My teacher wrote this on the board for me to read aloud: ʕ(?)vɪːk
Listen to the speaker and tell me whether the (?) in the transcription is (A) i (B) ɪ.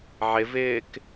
B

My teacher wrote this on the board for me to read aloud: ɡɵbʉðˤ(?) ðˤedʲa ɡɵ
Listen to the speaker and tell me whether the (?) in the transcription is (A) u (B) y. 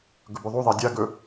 A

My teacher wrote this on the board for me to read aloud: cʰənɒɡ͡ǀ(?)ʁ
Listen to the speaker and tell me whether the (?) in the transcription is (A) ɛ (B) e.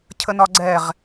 A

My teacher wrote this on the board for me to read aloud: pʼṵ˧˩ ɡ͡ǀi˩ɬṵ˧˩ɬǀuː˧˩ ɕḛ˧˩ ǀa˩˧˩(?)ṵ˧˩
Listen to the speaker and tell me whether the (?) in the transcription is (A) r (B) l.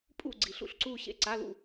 B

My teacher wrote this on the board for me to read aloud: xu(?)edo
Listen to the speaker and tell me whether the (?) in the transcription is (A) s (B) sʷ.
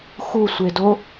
B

